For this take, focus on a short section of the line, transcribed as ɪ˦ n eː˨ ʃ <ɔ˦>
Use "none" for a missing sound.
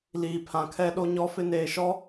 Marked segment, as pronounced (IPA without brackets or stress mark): ɔ˦